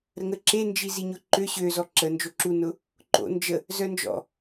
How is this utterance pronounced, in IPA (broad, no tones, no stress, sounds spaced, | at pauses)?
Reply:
ɾ ə ŋ ə ǁ e n d͡ʒ i z i ɲ ʊ ǃ ø ɕ ø z ɔ ǁ ə n d͡ʒ o ǁ u n ʊ | ǃ o̰ n d͡ʒ ə | z œ n d͡ʒ ɔ̰